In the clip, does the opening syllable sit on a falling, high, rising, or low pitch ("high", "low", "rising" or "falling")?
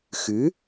rising